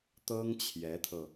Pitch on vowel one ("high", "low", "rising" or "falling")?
high